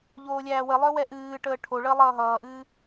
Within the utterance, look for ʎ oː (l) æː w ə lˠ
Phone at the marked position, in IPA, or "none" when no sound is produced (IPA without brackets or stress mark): lʲ